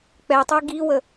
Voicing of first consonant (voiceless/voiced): voiceless